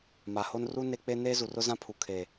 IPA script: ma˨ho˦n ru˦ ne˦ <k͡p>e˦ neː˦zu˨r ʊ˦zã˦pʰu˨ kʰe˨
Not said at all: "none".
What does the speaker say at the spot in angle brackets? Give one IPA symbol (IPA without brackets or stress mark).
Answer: k͡p